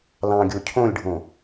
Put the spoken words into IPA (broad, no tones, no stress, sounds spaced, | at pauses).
l ɑ̃ ɡʲ o cʰ õ lʲ ɖʱ õ